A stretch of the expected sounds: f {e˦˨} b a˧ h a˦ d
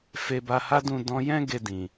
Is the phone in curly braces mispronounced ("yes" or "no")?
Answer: yes